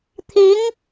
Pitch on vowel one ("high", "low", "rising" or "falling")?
rising